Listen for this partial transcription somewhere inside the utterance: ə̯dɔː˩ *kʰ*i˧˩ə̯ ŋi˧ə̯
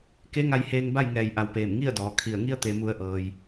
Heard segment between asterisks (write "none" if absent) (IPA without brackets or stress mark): kʰ